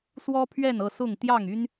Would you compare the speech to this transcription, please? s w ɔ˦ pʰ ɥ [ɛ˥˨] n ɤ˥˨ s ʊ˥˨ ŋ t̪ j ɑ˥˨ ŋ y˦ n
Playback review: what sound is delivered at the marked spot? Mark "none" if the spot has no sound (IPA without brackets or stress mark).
ɛ˥˨